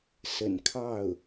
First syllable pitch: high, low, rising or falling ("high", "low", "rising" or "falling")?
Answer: low